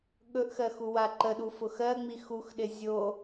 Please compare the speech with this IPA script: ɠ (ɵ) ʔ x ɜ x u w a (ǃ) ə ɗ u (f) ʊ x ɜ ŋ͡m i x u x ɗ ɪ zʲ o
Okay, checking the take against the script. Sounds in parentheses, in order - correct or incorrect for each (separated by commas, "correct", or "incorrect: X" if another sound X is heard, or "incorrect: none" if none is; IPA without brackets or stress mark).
correct, correct, correct